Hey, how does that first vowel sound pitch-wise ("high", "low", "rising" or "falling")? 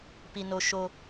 high